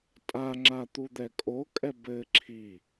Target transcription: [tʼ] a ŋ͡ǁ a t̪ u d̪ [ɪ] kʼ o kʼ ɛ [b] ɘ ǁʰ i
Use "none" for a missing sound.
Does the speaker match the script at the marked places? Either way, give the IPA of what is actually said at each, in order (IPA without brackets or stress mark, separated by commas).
tʼ, ɛ, b